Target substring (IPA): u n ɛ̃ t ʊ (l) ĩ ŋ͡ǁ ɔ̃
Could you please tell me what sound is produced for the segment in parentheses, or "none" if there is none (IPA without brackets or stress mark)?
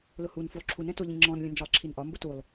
ʎ